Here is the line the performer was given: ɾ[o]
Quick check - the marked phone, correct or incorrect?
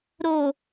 correct